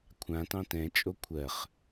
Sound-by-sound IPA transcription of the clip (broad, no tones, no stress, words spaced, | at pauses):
kʷʰãtɑ̃ tɛ̃t͡ʃʼo kʷʰɜχ